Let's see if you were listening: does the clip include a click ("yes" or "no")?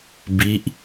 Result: no